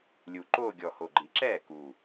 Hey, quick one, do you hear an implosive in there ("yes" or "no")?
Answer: no